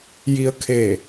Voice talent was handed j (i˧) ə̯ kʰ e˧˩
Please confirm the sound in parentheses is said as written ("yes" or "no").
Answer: yes